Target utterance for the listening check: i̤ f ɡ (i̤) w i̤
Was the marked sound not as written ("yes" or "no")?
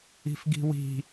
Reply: no